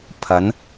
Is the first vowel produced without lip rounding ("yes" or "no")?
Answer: yes